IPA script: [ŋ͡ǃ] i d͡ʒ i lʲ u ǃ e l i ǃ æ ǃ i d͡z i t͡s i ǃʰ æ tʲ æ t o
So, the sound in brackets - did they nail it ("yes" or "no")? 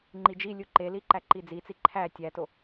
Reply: yes